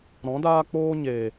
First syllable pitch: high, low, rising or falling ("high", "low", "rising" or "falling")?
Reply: rising